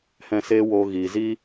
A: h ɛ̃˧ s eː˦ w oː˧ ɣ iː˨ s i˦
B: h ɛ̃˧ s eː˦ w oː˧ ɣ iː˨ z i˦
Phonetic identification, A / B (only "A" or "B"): B